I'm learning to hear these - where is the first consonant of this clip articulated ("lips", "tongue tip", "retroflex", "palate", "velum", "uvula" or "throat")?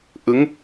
throat